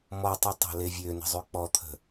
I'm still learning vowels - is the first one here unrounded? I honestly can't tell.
no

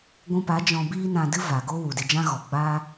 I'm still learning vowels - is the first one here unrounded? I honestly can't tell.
no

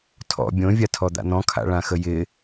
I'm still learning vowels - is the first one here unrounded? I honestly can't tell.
no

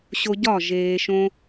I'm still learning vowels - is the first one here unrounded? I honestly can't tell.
no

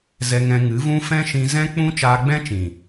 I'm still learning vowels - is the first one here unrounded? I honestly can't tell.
yes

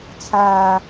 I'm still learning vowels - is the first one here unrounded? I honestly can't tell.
yes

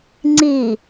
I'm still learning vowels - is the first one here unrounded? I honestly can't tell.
yes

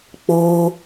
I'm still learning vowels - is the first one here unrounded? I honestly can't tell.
no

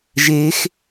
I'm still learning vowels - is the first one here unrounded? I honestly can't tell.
yes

